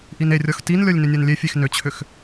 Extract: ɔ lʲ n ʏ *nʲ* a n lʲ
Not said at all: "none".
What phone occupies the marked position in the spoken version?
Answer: nʲ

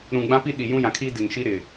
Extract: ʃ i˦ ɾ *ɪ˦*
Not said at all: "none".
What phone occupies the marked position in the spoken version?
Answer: ɪ˨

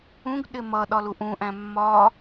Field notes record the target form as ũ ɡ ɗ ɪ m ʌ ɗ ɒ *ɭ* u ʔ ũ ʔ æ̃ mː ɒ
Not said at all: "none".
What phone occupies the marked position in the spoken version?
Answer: l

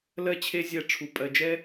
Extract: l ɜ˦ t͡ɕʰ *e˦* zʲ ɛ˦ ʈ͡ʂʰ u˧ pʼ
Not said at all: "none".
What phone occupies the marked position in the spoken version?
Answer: e˦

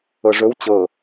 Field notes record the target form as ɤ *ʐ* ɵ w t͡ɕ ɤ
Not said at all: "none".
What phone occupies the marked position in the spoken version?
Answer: ʐ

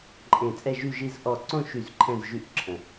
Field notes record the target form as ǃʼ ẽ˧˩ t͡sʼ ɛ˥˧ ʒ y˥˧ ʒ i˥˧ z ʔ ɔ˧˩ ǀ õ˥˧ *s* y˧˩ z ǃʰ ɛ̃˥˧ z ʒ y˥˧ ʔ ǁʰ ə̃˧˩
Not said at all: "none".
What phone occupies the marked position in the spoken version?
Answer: ʃ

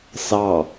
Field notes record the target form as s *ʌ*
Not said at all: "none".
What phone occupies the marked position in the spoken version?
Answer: ɑ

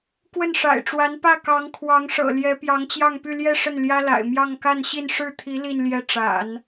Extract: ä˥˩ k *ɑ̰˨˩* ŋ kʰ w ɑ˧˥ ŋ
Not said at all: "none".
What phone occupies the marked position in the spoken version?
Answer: ɑ˧˥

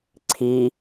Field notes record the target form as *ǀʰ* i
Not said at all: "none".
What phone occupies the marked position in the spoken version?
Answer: ǀʰ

